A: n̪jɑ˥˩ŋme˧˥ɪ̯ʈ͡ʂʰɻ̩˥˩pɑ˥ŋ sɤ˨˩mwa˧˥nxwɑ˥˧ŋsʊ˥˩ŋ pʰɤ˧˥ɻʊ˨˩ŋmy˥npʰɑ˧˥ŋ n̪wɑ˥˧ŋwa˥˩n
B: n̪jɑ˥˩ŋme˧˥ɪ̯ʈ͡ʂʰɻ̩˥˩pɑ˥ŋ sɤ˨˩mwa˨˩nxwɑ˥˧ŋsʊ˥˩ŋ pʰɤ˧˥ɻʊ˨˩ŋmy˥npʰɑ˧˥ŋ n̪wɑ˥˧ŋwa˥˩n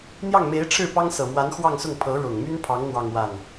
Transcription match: A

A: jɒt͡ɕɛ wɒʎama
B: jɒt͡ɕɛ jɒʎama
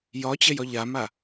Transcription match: B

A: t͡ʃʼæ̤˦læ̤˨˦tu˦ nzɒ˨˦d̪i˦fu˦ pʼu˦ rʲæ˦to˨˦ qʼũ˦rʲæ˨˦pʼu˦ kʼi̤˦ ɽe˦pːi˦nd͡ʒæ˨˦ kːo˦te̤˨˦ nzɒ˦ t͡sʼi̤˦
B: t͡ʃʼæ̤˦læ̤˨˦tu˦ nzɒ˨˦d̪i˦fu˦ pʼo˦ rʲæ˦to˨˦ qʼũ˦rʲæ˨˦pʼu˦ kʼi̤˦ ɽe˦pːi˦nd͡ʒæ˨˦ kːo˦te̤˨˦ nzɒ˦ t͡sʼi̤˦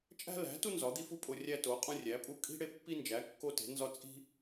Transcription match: B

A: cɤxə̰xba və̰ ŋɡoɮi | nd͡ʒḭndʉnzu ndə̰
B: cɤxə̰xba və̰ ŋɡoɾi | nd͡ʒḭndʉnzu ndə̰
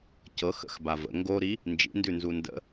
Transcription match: B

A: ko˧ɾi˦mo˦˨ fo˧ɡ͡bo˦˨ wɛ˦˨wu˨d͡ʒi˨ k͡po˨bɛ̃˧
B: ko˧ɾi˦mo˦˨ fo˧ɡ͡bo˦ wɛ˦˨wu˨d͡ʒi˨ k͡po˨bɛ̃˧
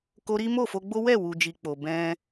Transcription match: B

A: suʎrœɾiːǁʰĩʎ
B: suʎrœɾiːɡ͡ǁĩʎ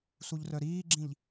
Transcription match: B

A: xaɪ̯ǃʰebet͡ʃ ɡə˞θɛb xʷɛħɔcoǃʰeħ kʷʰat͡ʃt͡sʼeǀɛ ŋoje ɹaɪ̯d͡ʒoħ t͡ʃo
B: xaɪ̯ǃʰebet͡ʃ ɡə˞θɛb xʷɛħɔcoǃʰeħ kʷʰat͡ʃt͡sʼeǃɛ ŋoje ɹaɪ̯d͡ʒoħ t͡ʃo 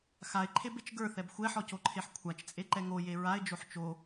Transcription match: B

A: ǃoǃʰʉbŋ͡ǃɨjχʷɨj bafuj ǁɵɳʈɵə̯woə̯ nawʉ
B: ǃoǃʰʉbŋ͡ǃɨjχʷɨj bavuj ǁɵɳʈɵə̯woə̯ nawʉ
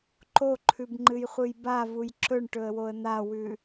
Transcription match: B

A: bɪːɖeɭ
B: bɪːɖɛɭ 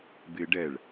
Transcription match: B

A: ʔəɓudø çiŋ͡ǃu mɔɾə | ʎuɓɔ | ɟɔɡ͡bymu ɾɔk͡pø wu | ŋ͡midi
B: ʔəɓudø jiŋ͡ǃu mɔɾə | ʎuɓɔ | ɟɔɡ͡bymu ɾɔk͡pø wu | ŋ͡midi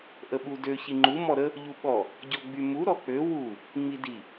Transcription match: A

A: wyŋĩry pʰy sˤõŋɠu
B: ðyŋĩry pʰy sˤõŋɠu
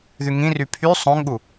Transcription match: B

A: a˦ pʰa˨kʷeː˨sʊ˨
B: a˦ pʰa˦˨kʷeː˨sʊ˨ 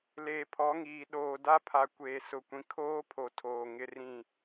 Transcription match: A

